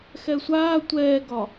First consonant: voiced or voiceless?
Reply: voiceless